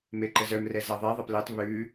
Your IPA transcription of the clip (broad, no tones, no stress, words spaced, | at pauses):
meǃəzœmrɛ zaðˤe ðˤapletˤ βʉ